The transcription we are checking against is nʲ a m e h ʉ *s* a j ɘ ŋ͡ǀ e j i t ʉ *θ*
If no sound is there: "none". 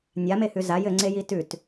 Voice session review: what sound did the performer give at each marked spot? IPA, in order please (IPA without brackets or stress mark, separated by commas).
z, t